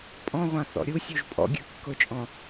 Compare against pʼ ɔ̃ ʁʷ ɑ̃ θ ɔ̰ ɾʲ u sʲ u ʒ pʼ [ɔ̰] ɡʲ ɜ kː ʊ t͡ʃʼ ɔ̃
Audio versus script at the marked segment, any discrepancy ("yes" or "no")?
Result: no